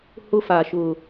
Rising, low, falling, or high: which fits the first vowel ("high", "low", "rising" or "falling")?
high